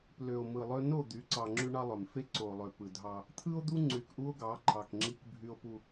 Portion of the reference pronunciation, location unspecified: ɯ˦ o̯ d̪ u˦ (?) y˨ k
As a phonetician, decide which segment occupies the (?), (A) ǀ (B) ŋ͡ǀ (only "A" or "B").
B